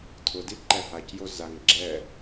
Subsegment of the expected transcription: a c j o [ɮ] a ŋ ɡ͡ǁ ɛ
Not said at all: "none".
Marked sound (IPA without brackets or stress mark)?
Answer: z